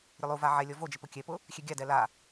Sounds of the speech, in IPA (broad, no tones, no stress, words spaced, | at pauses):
ɾʲʊlˠuva ʕɛ lʲɔvod͡ʒɪ pʊkʲɛpʊ | xʲeɡʲadɛ la